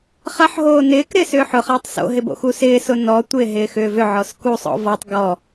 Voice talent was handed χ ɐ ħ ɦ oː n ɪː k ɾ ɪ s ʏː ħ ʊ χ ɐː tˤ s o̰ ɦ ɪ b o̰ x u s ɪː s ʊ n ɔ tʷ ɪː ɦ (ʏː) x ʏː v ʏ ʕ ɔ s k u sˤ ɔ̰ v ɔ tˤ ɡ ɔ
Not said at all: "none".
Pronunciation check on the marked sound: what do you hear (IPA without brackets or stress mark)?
ɪː